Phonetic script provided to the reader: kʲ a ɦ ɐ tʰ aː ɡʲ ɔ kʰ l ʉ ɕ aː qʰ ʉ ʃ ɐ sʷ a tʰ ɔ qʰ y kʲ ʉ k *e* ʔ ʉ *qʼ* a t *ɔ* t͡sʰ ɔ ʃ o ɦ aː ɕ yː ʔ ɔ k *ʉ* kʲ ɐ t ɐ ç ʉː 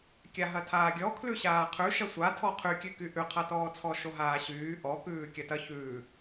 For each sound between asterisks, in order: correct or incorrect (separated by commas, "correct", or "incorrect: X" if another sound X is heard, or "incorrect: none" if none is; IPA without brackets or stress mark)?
incorrect: y, incorrect: qʰ, incorrect: ɔː, incorrect: ʉː